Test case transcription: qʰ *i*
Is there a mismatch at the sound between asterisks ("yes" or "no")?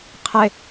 yes